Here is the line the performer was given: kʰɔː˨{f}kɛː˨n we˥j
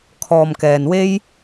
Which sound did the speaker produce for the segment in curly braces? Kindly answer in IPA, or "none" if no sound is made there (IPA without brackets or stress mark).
m